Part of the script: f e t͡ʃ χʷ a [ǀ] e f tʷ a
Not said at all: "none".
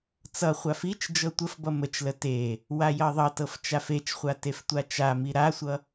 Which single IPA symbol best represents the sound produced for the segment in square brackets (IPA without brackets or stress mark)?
t